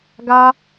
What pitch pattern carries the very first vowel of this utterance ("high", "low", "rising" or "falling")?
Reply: high